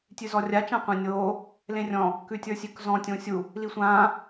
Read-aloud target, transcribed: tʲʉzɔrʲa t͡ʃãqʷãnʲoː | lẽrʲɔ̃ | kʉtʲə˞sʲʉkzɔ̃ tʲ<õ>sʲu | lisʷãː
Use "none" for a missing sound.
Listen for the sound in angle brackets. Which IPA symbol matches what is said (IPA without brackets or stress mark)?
õ